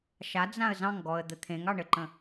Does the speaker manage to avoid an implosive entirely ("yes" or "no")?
yes